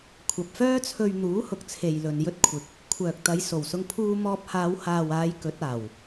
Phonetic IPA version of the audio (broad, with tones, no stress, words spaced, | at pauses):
kʷʰɐ˨p̚fœː˥ t͡sʰɵ˧ɥn̪uː˨˥hʊ˨k̚ t͡sʰe˨jlɵ˨n jɵ˧t̚ kʷʰɪ˨k̚ | kʷʰœː˨k̚t̪ɐ˨˧jso˨˩wsʊ˧ŋ pʰuː˧mɔː˧p̚haː˨˧w haː˨waː˨˧j kɵ˨˥t̚aː˨˩w